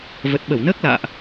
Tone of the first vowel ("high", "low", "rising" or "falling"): low